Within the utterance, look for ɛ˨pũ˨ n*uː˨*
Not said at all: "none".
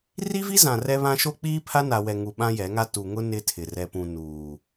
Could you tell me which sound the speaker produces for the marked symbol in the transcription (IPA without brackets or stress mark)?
uː˨